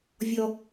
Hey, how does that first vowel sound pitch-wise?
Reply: high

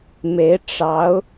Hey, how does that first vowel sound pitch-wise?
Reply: rising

